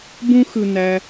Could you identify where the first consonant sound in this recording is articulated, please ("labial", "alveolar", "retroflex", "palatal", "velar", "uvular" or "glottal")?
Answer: labial